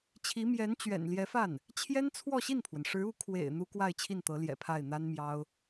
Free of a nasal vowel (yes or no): yes